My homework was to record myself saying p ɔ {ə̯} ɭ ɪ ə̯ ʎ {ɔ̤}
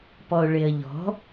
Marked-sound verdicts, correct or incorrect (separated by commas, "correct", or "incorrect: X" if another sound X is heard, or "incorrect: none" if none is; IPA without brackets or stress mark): incorrect: ʊ̯, correct